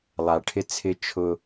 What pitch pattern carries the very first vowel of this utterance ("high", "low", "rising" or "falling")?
low